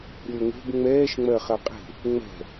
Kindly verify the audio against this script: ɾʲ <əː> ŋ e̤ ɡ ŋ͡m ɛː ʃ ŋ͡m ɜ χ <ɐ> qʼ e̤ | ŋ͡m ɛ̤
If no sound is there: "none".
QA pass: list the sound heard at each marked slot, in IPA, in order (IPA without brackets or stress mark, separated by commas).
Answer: əː, ɐ